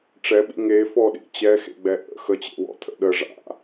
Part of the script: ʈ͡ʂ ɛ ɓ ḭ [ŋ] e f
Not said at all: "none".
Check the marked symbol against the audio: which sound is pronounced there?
ŋ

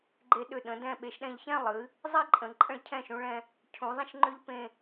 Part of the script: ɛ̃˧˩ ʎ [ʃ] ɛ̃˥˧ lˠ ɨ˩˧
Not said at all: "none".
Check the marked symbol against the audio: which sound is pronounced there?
ç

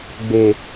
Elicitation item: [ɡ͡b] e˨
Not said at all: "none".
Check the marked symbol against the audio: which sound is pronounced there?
ɡ͡b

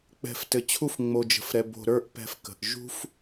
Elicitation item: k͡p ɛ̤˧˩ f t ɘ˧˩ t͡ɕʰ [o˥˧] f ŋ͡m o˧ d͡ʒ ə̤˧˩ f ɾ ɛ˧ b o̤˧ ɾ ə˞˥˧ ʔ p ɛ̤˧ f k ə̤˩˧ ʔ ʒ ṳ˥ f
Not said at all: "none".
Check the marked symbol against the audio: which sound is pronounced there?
u˥˧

